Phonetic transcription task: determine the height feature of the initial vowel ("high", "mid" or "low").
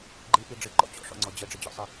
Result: high